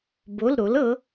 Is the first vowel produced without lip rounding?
no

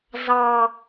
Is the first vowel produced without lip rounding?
yes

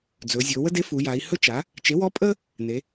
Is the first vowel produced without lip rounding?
no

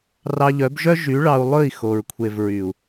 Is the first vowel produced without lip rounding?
yes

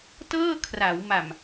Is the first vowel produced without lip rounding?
yes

